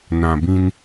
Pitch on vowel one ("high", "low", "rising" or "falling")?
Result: low